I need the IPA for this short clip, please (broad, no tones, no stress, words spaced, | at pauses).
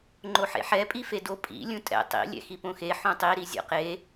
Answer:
ŋ͡ǃoħḛħɛ pʼifedo pʼḭ lʲũtʼɛ̰ tˤḭ lʲɛ̰xipõxe ħõtˤi ɾizʲɔ̰qe